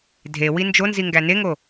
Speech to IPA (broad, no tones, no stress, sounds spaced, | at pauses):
dʱ e w i n d͡ʒ o n z i ŋ ɡ æ n e ŋ o